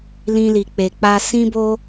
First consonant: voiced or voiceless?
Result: voiced